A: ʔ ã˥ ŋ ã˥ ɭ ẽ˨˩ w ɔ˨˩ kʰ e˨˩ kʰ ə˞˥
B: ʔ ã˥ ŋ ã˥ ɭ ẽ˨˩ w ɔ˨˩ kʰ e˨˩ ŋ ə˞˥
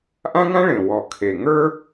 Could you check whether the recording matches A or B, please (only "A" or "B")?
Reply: B